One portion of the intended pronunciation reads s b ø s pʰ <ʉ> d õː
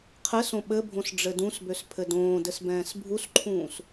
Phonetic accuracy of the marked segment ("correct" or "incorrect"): incorrect